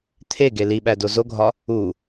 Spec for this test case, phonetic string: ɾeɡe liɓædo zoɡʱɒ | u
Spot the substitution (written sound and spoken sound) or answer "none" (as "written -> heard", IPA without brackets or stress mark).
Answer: ɾ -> t̪ʰ